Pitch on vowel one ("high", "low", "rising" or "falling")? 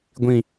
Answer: low